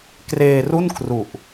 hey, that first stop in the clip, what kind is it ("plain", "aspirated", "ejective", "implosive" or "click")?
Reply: plain